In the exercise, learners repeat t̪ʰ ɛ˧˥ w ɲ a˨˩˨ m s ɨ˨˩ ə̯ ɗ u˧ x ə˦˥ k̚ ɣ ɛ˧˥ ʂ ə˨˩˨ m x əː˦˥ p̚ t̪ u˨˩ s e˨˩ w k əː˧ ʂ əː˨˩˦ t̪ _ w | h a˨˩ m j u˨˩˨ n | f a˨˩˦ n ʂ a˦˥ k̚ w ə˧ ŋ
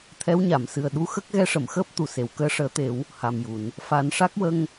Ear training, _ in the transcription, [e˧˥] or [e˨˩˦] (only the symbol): e˨˩˦